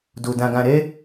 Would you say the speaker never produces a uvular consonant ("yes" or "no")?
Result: yes